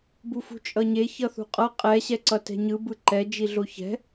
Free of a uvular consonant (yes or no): no